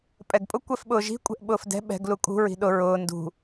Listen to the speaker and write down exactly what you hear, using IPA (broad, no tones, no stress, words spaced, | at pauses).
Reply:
pʼɛɡpʼʊ kʷɛfɓʊːʒi̤ kʷʼɛ̤ʔɓʊːfdɛ̤ ɓɛ̤ɡ lukʼṳ ɹi̤ɗʊ ɹʊː ndṳ